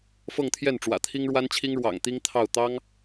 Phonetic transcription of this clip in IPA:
f ɤ˥˧ ŋ t̪ʰ j ɛ˥˩ n ʈ͡ʂ w ä̰˨˩ t̪ʰ i˥ ŋ ɻ w a˥ n t͡ɕʰ i˥ ŋ ɻ w ɑ̰˨˩ ŋ t̪ i˥ ŋ t̪ʰ ɑ˥˩ ʊ̯ t̪ ɑ˥ ŋ

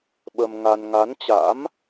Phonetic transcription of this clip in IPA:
ɓ ə˧ m ŋ a˧ n ŋ a˨˦ n t͡ɕ a̰˧˥ m

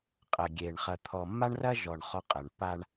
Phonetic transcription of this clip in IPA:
qʼ ɐ˨ ɡʲ e˨ ɳ χ ɐ˨ t̪ʰ ɔ˨ mː a˦ ɳ r ɐ˦ ʒ ɔ˨ ɳ χ ɔ˦ qʼ ɐ˨ ɳ p a˦ ɳ

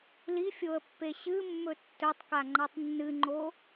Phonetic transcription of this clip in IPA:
l i fʲ o ə̯ pː e ɕ ɨ mː ɵ tː ɵ tˤ k a ŋ͡ǃ a tˤ nː ɨ ŋ͡ǃ o

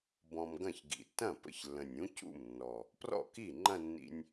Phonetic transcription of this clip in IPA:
b ɔ̃˧ m ɡ ɐ̃˥˩ ç ɡ ḭ˨˩ tː ɐ̃˥˩ p ə̰˥˩ ç lː ə̃˨˩ nʲ ũ˧˥ c ṵ˥˩ m nː ɔ˨˩ | p r ɔ̰˥˩ k i˥˩ ŋ͡ǃ ɐ̃˥˧ nː ḭ˧ nʲ

